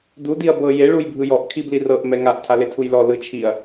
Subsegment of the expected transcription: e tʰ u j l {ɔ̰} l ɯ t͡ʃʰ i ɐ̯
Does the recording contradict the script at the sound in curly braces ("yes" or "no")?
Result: yes